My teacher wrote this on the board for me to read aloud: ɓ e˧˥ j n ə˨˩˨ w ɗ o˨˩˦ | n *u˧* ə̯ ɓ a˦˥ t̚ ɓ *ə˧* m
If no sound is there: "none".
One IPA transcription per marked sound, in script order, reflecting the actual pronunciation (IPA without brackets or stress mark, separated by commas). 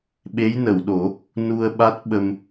u˧, ə˧